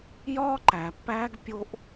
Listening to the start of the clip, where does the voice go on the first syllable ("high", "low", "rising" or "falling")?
high